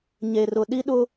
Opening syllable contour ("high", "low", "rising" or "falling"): low